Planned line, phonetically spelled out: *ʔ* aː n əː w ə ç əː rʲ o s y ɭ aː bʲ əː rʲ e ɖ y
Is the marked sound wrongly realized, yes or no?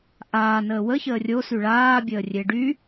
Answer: no